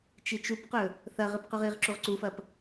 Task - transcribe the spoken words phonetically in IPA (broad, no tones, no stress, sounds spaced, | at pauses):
t͡ʃ i t͡ʃ u p q ɵ | θ ɐ ʁ ɨ p q ʉ ʁ i ʁ ǁ u ʁ ǀ u f ɐ p